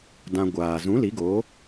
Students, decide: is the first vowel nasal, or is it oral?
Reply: nasal